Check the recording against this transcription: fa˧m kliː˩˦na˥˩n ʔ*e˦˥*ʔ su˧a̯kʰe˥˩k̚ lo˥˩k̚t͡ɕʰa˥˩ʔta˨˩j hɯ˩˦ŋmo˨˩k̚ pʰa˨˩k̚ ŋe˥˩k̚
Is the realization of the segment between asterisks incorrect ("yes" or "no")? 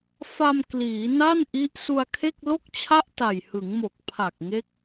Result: yes